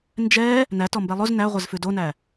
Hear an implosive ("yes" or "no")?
no